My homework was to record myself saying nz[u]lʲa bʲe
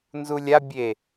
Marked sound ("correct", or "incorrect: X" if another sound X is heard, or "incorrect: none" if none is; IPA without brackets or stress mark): correct